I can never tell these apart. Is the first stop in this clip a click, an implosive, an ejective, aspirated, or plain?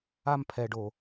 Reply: aspirated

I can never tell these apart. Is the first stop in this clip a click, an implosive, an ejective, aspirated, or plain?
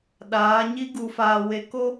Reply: implosive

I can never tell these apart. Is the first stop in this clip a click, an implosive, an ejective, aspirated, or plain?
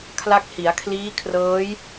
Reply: aspirated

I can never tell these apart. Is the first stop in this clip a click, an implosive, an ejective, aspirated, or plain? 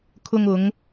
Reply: aspirated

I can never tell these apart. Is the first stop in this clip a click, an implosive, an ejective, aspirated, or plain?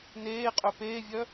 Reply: ejective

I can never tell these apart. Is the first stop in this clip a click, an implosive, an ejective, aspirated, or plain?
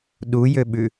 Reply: implosive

